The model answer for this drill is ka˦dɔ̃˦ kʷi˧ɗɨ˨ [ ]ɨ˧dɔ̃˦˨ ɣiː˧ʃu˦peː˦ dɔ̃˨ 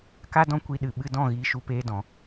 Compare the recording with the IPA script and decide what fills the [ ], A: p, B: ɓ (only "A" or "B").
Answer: B